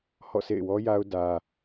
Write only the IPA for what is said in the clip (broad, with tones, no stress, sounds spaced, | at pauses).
h ɔ̰˦˨ sʰ ḛ˦˨ ɪ̯ w ɔ˦ j a˦ ʊ̯ d ä˦